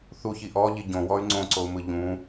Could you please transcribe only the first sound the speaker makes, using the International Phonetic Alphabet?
θ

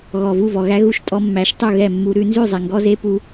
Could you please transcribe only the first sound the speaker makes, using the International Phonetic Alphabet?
ɣ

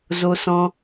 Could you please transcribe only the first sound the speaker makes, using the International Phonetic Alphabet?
z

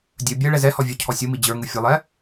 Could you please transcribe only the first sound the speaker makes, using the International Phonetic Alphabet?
dʲ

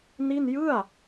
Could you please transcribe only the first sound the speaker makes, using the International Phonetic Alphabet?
n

